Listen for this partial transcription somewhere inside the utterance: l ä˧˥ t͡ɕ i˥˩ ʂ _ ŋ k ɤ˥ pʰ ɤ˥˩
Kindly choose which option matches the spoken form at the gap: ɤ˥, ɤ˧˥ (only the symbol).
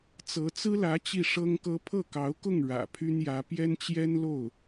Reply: ɤ˥